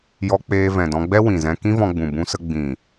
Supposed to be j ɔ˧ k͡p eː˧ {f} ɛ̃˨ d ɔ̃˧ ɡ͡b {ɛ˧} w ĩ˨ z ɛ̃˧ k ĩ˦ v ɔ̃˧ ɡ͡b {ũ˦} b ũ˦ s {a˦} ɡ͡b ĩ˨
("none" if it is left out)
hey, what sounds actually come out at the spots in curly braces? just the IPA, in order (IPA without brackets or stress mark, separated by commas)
v, ɛ˦, ũ˨, ə˦